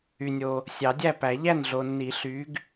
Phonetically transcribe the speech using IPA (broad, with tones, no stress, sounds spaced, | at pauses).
y˨ nʲ o˨ | sʲ ɑ˨˩˦ dʲ æ˥˩ p æ˨˩˦ ʎ æ˥˩ n ɮ o˨ nː i˨˩˦ ɬ y˨˥ ɡ